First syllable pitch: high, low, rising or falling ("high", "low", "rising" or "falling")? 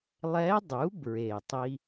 rising